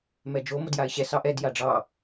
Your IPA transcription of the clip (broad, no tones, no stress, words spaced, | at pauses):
mɛd͡ʒo modjaɪ̯ɕɛ sɑʔɛd jaɖ͡ʐɑ